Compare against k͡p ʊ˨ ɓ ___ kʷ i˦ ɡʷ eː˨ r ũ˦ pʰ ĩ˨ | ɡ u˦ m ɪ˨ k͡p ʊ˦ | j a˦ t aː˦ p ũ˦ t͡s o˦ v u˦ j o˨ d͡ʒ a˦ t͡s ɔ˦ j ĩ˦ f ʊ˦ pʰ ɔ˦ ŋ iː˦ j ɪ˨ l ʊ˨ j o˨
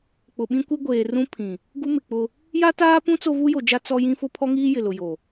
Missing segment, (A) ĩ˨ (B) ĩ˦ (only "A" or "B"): B